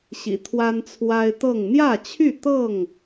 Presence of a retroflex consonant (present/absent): absent